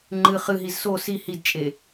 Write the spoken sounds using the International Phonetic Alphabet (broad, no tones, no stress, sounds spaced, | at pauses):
ŋ͡ǃ ɨ χ ɨ ɦ i z s o s i h i d t͡ʃʼ e